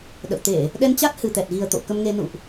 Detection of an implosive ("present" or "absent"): present